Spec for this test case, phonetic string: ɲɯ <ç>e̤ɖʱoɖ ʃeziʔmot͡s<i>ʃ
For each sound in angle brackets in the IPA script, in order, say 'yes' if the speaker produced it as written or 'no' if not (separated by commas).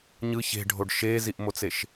yes, no